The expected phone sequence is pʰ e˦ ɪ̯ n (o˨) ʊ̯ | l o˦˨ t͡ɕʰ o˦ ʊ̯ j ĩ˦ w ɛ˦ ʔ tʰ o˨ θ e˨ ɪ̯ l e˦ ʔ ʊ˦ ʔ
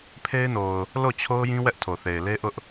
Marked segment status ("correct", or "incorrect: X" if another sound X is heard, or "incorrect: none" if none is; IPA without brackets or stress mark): correct